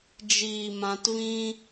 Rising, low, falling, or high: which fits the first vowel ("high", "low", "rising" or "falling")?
low